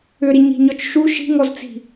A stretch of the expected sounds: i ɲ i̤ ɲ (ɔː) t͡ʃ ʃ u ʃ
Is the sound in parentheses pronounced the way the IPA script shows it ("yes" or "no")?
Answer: no